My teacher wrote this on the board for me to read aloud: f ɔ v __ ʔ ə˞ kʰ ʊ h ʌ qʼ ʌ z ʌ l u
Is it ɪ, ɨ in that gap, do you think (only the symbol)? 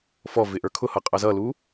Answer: ɪ